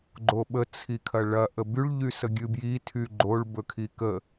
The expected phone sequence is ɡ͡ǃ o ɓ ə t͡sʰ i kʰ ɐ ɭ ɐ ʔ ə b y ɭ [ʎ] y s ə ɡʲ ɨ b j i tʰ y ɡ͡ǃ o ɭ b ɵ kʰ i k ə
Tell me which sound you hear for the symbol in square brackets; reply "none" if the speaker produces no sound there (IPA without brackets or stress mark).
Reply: ʎ